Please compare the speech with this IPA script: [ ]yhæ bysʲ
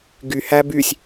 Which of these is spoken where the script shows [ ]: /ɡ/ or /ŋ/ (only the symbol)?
ɡ